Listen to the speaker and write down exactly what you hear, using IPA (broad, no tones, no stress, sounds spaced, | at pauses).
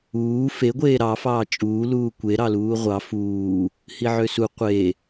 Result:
uː f e ɡʷ eː ɾ ɑ f ɑː t͡ʃʼ uː l uː kʷ e ɾ ɑ l uː ʁʷ ɑ f uː | h i ʕ ø s u qʷ e